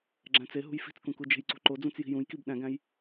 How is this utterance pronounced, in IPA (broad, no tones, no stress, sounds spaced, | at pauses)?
ɡ͡ǁ æ̃ t͡s e ɦ ṳ j f i̤ t͡s k ũ k u d͡ʒ e̤ j ǀ ṳ ǃ o d͡z ũ t͡s j i̤ j ũ j k i b ɗ æ̃ ɡ æ̃ j